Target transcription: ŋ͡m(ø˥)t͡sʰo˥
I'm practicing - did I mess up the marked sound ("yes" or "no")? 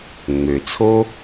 yes